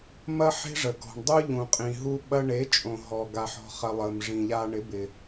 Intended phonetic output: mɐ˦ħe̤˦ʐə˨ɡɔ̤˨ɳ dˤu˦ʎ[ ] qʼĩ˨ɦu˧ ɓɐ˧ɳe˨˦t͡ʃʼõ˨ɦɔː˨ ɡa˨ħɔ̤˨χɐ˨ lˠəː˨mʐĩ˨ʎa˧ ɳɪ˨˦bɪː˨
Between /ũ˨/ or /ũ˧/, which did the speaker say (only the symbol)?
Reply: ũ˨